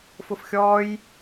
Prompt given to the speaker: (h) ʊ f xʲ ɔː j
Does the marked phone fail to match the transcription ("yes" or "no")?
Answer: yes